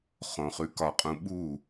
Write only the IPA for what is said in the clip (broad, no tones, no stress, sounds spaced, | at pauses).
χ õ χ ʉ k ɒ qʼ ũ ɓ u